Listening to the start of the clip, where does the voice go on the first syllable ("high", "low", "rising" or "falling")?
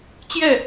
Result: falling